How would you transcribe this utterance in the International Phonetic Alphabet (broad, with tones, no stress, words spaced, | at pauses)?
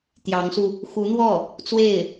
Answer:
t̪jɑ˧˥ŋsu˧ | xu˧˥n̪wɔ˥˩ | t͡swe˥˩ɪ̯